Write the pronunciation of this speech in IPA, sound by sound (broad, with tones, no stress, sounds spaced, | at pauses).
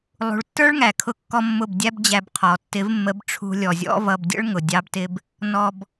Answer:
lˠ ṳ˨ ɭ tː ə˞˦ ɭ ŋ æ˨ kʰ ʊ˧ kː ɔ˧ mː ʊ˦˨ b dʲ æ˦ b d͡ʑ æ˧ b qʰ ɔ˨ tː ɪ˨˦ v mː ə˨˦ b ʈ͡ʂʰ ṳ˧ lʲ ɔ˨ zʲ ɔ̰˦ v ʌ˧ b dʲ ə̰˦ ɭ ŋ ʊ˨ dʲ ɑ˧ b t ɪ˧ b | n ɔ˧ b